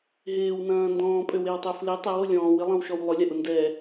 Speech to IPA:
ɦɪːwnɐ̃ː ndɔ̃ːpʼøwewtˤø flɪ tˤɛwo lʲɔ̃ːwɪlˠɐ̃wʃɔw lˠʊlʲaʔʊ ndɛ

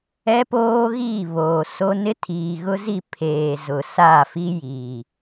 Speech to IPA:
ɛ˦poː˦ɣiː˦˨ βoː˨so˦ nɪ˦tʰiː˨ɣʊ˦zi˦˨ pʰeː˨zʊ˨ sa˦˨fi˦ jiː˨

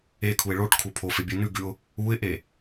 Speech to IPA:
ekʰuɪ̯ ɭoʈ kʰupʰofe bʲʉnʉɡʉʊ̯ | uɪ̯ʔe

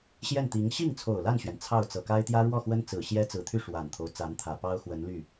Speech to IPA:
ɕjɛ˥˩nt̪i˧˥ŋ ɕi˥˩ŋt͡sʰo˨˩ʊ̯ la˥˩nɕɥɛ˩n t͡sʰɑ˥˩ʊ̯ t͡sɤ˨˩ka˥ɪ̯ t̪jä˥ɻwɔ˥˩xwə˥nt͡sɹ̩˨˩ ɕjɛ˥t͡sɹ̩˨˩t̪ʰy˥˩ ʂwa˨˩nt̪ʰo˦ʊ̯t͡sa˧˥nt̪ʰä˨˩ pɑ˥ʊ̯xwə˧˥nly˥˩

